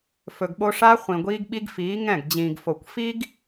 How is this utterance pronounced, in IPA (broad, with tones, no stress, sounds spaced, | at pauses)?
f ɵ˨ ɡ ɓ o˦ ʂ a˦ χʷ ĩ˨ ɡʷ iː˦ ɡ ɓ i˦ ɡ f iː˨˦ ŋ ɛ̃˦˨ ɡ d͡ʑ ĩː˨ ɡ f o˨ kʷ f i˦ ɡ